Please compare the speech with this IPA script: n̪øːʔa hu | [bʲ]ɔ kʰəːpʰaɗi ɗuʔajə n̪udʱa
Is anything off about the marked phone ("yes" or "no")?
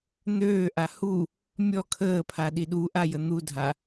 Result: yes